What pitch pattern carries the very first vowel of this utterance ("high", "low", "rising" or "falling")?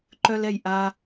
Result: high